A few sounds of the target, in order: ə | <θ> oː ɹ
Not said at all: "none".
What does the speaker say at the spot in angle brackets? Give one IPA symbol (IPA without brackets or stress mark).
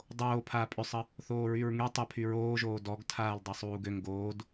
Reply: θ